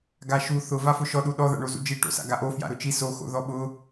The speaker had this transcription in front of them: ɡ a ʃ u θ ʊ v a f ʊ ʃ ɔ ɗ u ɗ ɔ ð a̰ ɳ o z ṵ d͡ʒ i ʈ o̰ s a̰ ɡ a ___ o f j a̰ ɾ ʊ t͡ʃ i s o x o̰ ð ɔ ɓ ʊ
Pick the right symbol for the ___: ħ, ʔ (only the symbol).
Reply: ʔ